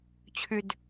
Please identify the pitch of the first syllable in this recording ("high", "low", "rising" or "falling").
low